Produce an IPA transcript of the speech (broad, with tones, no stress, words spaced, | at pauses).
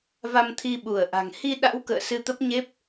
va˧mt̪ʰi˧ɓu˧˩ə̯ʔa̤˨˩ŋ hi˧ɗa̰˧˥wkə̰ː˧˨ sɨ˧t̪ə˦˥p̚ɲe˦˥p̚